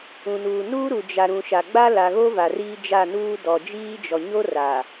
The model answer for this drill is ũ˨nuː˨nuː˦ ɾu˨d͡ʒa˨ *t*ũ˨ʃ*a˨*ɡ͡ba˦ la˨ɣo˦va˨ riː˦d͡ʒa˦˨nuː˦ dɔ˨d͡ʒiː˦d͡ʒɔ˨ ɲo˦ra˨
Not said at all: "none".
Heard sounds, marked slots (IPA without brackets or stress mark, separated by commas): ɾ, a˨